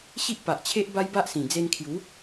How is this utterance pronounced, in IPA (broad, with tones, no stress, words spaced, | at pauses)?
ɕi˦ʔpa˨ʔt͡ɕʰe˦ʔ ba˦jba˦ʔsĩ˨˩ d͡ze˧nkʰju˨˦